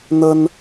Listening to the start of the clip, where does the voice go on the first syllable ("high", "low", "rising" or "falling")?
high